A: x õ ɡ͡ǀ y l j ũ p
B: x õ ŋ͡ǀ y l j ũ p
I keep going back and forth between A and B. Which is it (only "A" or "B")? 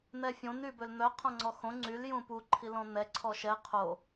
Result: B